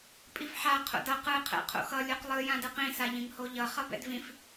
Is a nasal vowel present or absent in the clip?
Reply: present